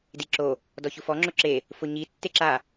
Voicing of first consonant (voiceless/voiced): voiced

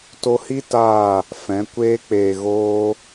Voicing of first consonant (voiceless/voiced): voiceless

